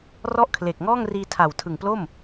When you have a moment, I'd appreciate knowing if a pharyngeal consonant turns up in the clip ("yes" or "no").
no